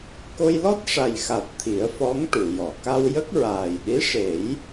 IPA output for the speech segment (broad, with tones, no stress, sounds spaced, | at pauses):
k o˧ j l ɔ˦˥ t̚ ʂ a˨˩ j x a˨˩ t̚ t̪ʰ i˨˩˦ ə̯ f ɔ˧˥ ŋ ʈ u˨˩˨ j ɔ˨˩˨ k a˧ w j ə˦˥ k̚ ɹ aː˨˩ j ɗ i˧˥ ʂ e˨˩˦ j